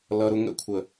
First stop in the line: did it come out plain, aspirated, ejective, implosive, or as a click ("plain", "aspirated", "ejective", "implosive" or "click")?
aspirated